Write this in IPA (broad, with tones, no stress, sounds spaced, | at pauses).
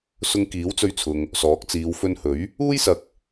s ʊ˧ ŋ k iː˨˥ w t͡s ɵ˧ ɥ t͡sʰ ʊ˨ ŋ | s ɔː˨˥ k̚ t͡s iː˨˧ w f ɵ˧ n h ɵ˨˥ ɥ | uː˥ j s ɐ˨ k̚